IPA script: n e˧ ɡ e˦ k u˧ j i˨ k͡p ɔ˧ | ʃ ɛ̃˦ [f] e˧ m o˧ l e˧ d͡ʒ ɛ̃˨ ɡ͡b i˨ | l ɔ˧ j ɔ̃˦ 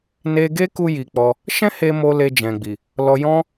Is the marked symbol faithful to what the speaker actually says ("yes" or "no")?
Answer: no